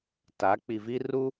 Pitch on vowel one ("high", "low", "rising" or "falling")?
rising